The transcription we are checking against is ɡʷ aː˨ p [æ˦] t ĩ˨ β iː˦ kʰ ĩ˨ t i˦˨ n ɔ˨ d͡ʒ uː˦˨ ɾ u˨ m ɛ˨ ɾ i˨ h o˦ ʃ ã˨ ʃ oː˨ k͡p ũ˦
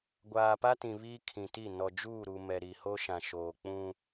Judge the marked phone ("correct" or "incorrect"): incorrect